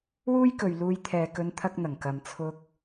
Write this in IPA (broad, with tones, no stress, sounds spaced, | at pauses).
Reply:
w uː˥ j k ɵ˨ ɥ l uː˧ j t̪ʰ ɛː˨ k ɵ˧ n t̪ʰ ɐ˥ k̚ n̪ ɐ˨˩ ŋ k ɐ˨ m t͡sʰ ʊ˧ k̚